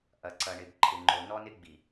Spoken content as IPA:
ʔ ɐ˨ ǀ ɐ˨ ɳ ɪ˨ b ǃʰ ɪ˨ ŋ͡ǃ o˨ n ɔ˦ n ɪ˦ ɡ͡b i˨

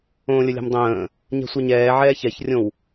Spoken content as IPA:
õː lʲ ə lʲ a̤ m dˤ ə̃ː | ɲ ɛ̤ sʷ ɛ ɲ ɛː ʕ ɛː ç ɛ ç rʲ õ w

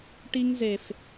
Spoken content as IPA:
ʈ i˦ ŋ z e˨ f

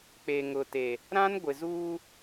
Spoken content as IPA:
k͡p e˨ ŋ ʊ˨ t e˨ | ɾ ã˦ n ɡʷ ɪ˨ z uː˦

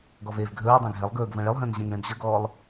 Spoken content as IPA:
ɡ ɔ v eː v ɡʱ ɵː dˤ ɛ̃ ɡʱ ɛ lˠ ɡ ɵː ɡ v ə̃ː ɭ e lˠ ɦ ə̃ː n ʑ ẽ ŋ ɭ ẽ b ʑ ə ɡ ɔː lˠ

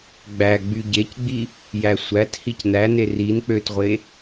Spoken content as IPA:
ɡ͡b æ ɡ͡b y ɟ e c ɡ͡b i | j æ sʷ æ t h i c n æ n e r i n k͡p ø t ʁʷ e

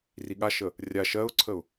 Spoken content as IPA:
r i ɠ a ʃ ə | rʲ a ʃ ɜ ʊ̯ ǀʰ ə ʊ̯

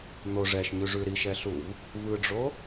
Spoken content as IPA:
n̪ o ʐ ɛ ʃ ɲ ʉ ʐ ʉ ɾ i ʃ ɛ ɬ u v | v ɯ ɖ͡ʐ o

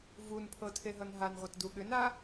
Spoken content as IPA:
v u n pʰ ɤ tʰ e ɦ ʌ n ɦ a n ʁʷ ʌ t d u ɠ ʏ n a

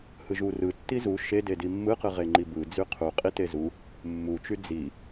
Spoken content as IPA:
h ɯ ʒ u r ɯ tː i z u ʃ e d e d i mː ɯ q ɯ ʁ e ŋ͡ǃ i b ɯ d͡z y qʰ u qʼ i t e z u | mː u t͡ʃ y d͡z i

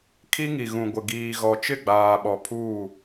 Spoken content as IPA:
kʰ i˦ ŋ i˨ ɣ ũ˨ ɡʷ ɪ˨ ɡ iː˨ ɣ ɔ˨ t͡ʃ ɪ˦˨ ɡ͡b aː˨ ɓ ɔ˨ pʰ uː˦˨

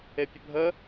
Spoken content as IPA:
e pʲ ə bʱ ə

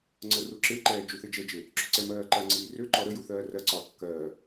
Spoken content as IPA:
ŋ͡ǀ ə r u ǁ e ǃ ɛː d͡ʒ u θ e d͡ʒ ɛ d͡ʒ e | ǁ ø ǀ ɛ m ɜː ǃ ɜ ŋ͡ǀ iː r ø ǃ ɔ ɾ ə j u θ ɜː r ɜ ǀ ɒː kː ɜː

